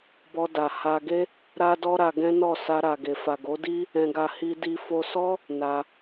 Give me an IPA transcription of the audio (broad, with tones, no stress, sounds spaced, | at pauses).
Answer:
b ɔ˧ d a˨ h a˧ ɡ e˦ | ɾ a˦ d ɔ˦ ɾ a˧ ɡ ɛ̃˦ n ɔ˦˨ s a˧ ɾ a˨ ɡ e˨ f a˨ ɡ o˨˦ d i˦ | ɛ̃˧ ɡ a˧ h i˧ d i˧ f o˧ s ɔ˦ | n a˧